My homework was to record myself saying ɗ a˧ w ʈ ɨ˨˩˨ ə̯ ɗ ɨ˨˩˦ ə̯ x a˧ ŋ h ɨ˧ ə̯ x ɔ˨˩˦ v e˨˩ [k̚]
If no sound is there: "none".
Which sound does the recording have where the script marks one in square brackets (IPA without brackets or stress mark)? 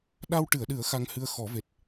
t̚